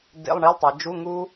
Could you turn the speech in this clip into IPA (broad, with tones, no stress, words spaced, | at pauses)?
dḛ˧˥˧lˠɳi˧˥˧lˠtˤa˩˧ d͡ʒu˧˥˧ ŋu˦˥